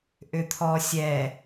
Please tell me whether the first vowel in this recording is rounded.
yes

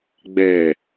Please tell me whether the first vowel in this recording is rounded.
no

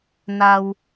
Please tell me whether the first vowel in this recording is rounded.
no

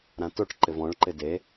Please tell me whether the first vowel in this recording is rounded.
no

